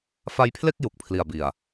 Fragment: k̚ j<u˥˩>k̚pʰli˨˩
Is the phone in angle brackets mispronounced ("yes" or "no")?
yes